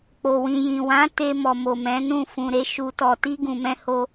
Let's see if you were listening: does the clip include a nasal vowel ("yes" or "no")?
yes